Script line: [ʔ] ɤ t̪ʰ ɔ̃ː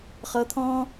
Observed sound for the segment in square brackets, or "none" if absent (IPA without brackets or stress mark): χ